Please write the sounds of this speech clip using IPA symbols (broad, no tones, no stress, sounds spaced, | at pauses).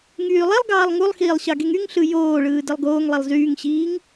ŋ yː lˠ i lˠ ɡ ɑː lˠ ŋ u lˠ x iː lˠ ɕ ɑ ɡ e ŋ y ŋ ɬ ɯ j oː ɭ ɯː d ɯ lˠ ɡ oː ŋ lˠ e lˠ z yː ŋ ɕ iː ŋ